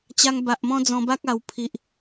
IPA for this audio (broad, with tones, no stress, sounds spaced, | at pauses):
t͡ɕ a˧ ŋ b a˨ ʔ m ɔ̃˦ d͡z ɔ̃˧ b a˦ k̚ a˧ w pʰ i˨ ʔ